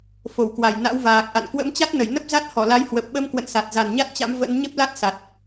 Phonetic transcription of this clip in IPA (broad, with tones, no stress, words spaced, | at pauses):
fo˧˩wkwa˧˩j na̰˧˥wvaː˨˩k̚ʔa̰˧˨n kwə̰˧˥mt͡ɕa˦˥t̚nə˧˩j nə˦˥p̚za˦˥t̚ hɔ˧˩la˨˦jhwə˨˩p̚ ɓə˧m kwə̰˧˨nsa˨˩t̚ za˨˩nɲa˦˥t̚t͡ɕa̰˧˥m və̰˧˥n ɲə˦˥p̚la˦˥t̚ sa˨˩t̚